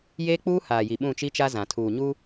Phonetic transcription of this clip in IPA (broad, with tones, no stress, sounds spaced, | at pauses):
j eː˦ k͡p uː˦ h aː˨ j i˨ ɓ ũ˦˨ t͡ʃ i˦ t͡ʃ a˦ z ã˨ tʰ uː˨ ɲ u˦